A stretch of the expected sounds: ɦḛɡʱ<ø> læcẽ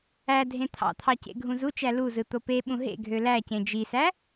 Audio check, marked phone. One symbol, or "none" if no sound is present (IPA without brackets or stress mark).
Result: ø